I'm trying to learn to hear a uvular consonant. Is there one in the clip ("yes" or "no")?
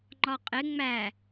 yes